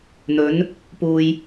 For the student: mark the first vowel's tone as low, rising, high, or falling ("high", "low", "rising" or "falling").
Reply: rising